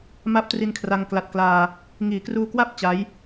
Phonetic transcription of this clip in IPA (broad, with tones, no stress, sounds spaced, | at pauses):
m a˦˥ p̚ t r i˧ n kʰ r a˧ ŋ k l a˨˩ t̚ k l aː˧ | ŋ iː˩˦ k r uː˧ k w a˥˩ p̚ t͡ɕ a˦˥ j